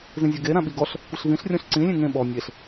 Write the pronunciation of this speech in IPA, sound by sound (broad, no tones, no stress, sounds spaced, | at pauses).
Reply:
z ĩ zʲ ɔ ɡ e ɾ ã ɓ i ɡ ɔ ɬ | kʷ ɪ ɬ v ĩ ɬ rʲ ɔ̃ ɬ ǀ ĩ lʲ ẽ ŋ ẽ ɓ ɔ nʲ e ɬ